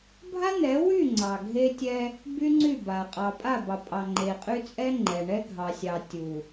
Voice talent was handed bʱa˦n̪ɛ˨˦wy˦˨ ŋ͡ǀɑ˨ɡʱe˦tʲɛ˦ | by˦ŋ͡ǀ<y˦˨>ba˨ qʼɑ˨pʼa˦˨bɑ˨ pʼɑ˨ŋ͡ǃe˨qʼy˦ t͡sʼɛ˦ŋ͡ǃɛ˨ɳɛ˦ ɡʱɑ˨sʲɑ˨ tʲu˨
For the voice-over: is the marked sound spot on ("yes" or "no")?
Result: yes